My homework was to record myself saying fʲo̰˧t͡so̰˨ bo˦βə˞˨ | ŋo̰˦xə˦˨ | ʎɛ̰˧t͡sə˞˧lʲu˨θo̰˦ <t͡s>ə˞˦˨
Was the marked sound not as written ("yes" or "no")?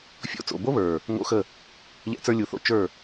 yes